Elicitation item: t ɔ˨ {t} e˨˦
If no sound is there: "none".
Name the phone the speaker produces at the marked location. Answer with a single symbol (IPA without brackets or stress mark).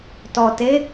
t